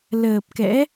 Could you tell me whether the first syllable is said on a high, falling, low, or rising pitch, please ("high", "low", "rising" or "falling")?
low